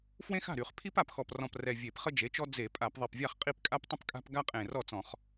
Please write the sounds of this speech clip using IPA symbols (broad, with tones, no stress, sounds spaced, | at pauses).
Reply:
f w ẽ˦ x a̤˥˩ ɾ y˧˩˧ χ pʰ i˦ p a˨˩ p x ɔ˨˩ p r ɔ̃˨˩ p r ɛ˨˩ vʲ e˧˩˧ p χ ə˦ d͡ʒ e˩˥ t͡ʃ ɔ˦ d͡z e˧˩˧ pʼ a˧˩˧ p ðˤ i˨˩ p vʲ a˥˩ χ qʼ i˥˩ p kʼ a˦ p tˤ ə̃˦ p kʼ a̤˦ p ɡ a˦ qʼ ẽ˨˩ r ɔ˥˩ t͡s ɔ̃˧˩˧ χ